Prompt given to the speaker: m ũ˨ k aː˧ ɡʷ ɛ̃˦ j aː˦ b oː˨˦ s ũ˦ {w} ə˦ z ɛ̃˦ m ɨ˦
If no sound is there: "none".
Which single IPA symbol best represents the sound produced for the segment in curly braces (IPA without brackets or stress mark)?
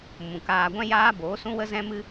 w